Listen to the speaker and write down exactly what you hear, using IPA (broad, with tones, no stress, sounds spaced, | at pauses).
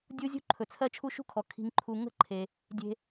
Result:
dʲ u˥ zʲ ṳ˥ ǃʰ ɵ˩ t͡sʰ ɜ˦ t͡ʃʰ u˦ ʃ ṳ˥ kʰ ɔ˩ kʰ i̤˨ ŋ ǃʰ u˨ ŋ ə̤˥ ǃʰ e˩ | dʲ e̤˨